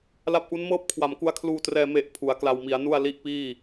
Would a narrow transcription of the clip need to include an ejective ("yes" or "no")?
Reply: no